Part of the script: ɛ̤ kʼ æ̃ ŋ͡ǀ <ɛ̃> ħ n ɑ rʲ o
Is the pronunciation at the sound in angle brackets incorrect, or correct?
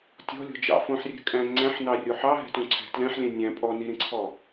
incorrect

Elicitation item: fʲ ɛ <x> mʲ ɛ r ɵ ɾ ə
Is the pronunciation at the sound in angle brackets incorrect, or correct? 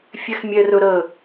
correct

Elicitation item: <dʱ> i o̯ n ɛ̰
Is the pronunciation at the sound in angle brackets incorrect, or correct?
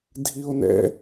correct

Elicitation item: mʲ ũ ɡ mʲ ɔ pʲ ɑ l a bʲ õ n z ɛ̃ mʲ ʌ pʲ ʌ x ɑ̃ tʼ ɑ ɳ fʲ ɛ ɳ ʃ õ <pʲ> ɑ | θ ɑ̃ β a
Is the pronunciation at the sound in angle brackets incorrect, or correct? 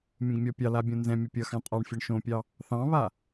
correct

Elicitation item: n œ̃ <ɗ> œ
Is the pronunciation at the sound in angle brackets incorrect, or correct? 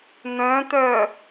incorrect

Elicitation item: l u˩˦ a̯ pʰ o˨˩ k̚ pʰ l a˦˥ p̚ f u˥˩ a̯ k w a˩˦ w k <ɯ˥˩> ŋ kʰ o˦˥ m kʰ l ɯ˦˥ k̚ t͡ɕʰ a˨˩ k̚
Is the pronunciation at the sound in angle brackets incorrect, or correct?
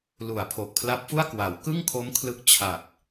correct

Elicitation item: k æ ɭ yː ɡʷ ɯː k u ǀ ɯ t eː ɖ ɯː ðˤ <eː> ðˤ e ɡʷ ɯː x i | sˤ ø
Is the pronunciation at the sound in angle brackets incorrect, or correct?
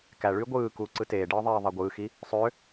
correct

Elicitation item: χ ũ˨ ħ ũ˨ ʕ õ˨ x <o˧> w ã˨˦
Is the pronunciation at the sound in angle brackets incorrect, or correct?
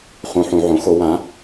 correct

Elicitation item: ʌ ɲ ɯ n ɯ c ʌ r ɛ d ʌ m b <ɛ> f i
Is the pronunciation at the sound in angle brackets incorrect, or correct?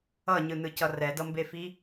incorrect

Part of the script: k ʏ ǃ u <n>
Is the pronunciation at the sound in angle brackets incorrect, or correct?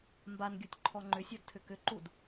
incorrect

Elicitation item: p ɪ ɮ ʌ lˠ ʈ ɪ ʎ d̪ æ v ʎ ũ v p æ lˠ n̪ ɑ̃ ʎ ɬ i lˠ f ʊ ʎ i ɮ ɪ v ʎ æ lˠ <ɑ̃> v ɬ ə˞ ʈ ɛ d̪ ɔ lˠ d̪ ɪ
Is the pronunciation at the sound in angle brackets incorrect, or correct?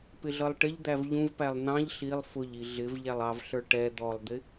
incorrect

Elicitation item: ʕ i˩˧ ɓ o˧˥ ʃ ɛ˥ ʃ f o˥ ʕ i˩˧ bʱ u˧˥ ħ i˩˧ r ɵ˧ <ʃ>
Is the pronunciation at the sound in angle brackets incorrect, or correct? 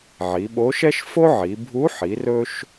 correct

